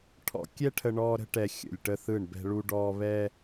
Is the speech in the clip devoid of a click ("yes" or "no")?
yes